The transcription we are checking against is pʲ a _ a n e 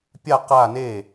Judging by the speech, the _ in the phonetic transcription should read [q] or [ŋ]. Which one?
q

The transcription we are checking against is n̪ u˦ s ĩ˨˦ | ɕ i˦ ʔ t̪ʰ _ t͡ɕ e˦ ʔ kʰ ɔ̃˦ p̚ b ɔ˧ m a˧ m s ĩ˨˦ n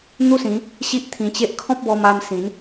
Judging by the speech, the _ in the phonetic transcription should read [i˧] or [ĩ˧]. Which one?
ĩ˧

